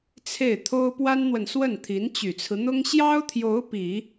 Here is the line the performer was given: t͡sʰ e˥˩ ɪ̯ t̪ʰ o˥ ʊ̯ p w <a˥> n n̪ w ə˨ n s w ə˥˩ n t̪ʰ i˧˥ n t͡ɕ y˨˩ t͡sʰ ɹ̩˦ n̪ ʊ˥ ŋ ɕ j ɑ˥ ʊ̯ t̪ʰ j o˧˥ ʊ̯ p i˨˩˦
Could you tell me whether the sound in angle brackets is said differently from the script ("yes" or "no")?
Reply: no